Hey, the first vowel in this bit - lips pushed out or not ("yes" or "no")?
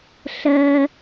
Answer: no